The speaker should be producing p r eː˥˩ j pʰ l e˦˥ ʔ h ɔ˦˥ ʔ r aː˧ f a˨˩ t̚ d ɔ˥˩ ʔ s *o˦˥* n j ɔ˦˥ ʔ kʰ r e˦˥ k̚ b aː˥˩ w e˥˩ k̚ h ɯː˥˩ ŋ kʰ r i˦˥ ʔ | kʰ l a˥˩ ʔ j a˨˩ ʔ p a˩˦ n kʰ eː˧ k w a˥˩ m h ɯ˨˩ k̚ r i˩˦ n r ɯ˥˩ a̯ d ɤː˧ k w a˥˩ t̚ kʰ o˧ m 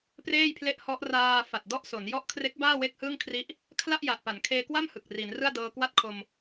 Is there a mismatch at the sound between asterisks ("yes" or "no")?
yes